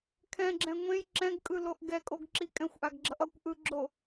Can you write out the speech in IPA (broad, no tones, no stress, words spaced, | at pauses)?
kʰɛ̃ɡ͡ǁɛ̃ ŋʷẽj ǁɛ̃ɡkʼɯloʔ ɡɛkʼoɡǁi kʼɛ̃xʷʔaɡɡ͡ǁʌʔ ʌkʷ ʔɯɡ͡ǁo